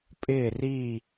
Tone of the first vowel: falling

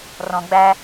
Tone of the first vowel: low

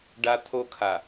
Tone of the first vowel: high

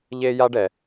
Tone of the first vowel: high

